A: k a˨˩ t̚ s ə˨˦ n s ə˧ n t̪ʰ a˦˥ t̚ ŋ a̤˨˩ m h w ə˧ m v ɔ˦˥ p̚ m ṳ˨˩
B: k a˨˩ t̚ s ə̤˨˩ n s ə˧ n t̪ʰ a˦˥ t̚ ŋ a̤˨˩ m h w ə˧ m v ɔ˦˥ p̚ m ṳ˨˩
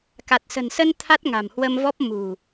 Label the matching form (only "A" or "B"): B